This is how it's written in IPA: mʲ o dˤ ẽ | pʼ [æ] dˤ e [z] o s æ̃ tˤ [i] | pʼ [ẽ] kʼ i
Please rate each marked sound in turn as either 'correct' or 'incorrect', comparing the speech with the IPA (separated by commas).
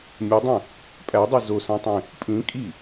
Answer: correct, correct, incorrect, incorrect